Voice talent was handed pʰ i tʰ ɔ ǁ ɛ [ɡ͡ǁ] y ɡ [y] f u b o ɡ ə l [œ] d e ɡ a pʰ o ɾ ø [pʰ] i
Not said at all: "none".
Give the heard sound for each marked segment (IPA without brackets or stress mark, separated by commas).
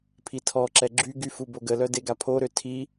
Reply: ɡ͡ǁ, y, œ, tʰ